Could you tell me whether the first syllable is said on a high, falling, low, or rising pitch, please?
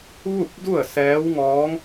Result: falling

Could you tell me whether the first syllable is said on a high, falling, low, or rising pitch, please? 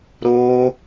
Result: high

